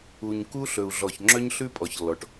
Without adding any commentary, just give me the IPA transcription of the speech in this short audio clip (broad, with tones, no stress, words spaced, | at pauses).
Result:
u˨ɲku˦ ɬɵ˨u̯ɮɔ˨ç ŋ͡ǁœ˦ɲɬʉ˦pʼɔ˨çlːɔ˨ʈ